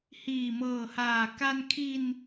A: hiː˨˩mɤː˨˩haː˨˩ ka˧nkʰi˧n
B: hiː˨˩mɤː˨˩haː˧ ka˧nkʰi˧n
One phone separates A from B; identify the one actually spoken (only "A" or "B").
A